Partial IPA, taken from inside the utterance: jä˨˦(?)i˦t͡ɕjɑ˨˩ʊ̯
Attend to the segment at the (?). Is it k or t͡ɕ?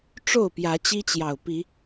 t͡ɕ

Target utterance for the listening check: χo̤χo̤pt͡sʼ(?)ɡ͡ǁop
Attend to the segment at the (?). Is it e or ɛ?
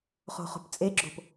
e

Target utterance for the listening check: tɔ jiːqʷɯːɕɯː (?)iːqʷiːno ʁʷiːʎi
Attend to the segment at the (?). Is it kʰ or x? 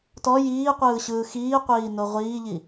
x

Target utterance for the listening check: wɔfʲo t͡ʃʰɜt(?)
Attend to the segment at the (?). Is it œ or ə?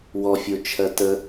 ə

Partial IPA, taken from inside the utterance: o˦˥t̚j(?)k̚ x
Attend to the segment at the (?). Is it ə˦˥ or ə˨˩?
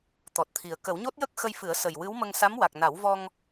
ə˦˥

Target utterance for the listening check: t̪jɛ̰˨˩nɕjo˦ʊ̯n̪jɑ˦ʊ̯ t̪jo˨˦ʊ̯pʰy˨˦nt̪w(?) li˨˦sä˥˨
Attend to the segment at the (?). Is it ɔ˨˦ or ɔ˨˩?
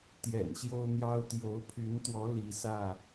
ɔ˨˦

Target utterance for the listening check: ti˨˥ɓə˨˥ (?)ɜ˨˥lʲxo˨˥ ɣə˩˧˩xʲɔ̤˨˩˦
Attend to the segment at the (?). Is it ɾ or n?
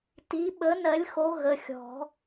n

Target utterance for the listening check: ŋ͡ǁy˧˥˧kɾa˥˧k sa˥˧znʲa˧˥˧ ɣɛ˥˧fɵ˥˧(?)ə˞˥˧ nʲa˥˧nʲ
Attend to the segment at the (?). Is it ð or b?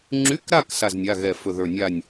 ð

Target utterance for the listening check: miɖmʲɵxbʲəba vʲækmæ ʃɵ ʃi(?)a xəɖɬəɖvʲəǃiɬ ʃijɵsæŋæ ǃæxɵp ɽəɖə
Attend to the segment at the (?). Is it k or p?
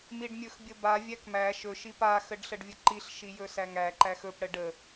p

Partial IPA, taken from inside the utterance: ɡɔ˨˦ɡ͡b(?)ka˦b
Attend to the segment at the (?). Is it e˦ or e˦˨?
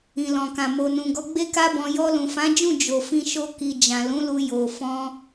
e˦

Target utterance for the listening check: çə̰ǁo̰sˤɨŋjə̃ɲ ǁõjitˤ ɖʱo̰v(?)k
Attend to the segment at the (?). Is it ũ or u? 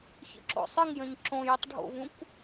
ũ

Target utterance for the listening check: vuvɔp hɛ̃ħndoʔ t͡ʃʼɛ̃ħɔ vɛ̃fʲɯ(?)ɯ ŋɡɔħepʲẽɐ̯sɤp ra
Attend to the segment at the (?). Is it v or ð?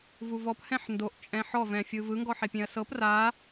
v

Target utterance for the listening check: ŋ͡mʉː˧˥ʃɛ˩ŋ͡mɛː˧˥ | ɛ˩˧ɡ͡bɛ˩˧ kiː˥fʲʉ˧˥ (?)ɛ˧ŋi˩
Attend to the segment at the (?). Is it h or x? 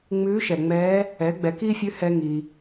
h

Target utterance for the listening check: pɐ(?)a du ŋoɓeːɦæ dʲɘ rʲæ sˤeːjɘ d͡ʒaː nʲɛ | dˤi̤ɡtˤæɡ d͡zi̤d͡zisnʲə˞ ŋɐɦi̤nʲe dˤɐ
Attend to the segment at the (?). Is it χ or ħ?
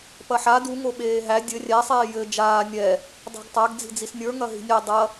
ħ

